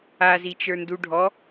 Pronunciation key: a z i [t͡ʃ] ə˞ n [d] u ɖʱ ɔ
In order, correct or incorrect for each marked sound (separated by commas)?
correct, correct